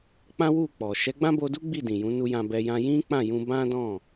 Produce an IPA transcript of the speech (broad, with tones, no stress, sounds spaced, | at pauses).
k͡p ã˦ w u˦˨ k͡p ɔ˨ ʃ ɛ˨˦ ɡ͡b ã˦ b o˧ d u˦ ɡ͡b i˦˨ d ĩ˨ j ũ˨˦ n u˧ j ã˧ b ɛ˧ j ã˧ j ĩ˦ k͡p ã˦˨ j ũ˧ b ã˦ d ɔ̃˦˨